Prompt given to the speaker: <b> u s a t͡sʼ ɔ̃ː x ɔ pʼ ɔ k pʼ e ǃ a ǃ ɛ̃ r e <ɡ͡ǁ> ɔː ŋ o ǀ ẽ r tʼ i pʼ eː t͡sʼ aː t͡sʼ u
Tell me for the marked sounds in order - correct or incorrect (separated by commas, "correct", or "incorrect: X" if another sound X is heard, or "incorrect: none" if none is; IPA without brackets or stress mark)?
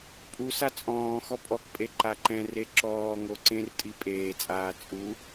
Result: incorrect: pʼ, incorrect: ǁ